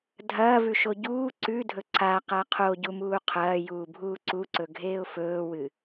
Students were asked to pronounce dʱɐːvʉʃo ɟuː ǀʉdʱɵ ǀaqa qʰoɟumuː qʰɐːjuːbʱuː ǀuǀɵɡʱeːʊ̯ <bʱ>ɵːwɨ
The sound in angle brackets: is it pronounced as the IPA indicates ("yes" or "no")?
no